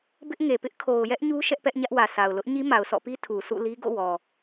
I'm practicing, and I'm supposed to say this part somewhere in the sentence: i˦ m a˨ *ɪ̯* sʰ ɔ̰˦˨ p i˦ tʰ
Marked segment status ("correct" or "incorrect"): incorrect